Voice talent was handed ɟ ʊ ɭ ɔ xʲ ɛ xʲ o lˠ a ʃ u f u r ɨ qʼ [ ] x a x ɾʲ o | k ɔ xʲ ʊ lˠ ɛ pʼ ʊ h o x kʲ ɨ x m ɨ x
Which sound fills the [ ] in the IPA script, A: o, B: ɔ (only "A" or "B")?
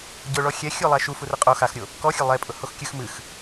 A